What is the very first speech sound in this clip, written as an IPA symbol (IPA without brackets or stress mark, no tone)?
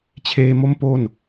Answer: t͡ɕʰ